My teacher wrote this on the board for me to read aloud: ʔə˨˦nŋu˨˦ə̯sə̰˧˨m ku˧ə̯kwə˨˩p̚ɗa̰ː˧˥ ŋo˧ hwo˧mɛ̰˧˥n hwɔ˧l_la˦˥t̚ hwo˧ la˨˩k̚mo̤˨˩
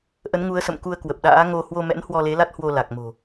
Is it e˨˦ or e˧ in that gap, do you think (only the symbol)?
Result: e˨˦